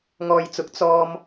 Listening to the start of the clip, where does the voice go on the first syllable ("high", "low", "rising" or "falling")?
low